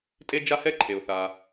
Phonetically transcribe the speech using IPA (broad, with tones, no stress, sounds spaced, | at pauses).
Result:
tʼ e˥ d͡ʒ a˥ h ɛ˥ ǃʰ e˩ ʊ̯ θ a˩